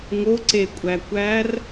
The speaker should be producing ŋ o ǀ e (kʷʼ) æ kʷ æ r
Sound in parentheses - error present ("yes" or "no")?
no